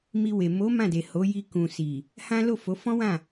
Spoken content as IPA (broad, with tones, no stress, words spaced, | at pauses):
mi˧we˨ mo˨˦ mã˦˨de˨ho˨˦ ji˧kũ˨si˨ | hã˦ lo˦˨fo˨˦fɔ̃˦wã˦˨